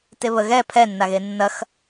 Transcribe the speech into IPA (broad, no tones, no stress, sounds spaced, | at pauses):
t e β ə ɣ ɛ pʰ ɛ nː a ɣ e nː ɐ x